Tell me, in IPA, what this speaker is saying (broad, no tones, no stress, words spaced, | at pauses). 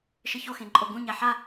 ʃɘço xẽǃʼoɡũɲa ħa